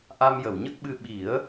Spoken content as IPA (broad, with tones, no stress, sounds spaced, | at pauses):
ʔ a˧ m j ə˨˩˨ w ɲ ə˦˥ k̚ ɓ ɨ˧ ɓ i˨˩˦ ə̯